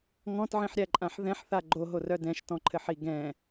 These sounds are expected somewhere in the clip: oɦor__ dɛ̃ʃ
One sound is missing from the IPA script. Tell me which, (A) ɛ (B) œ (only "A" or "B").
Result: B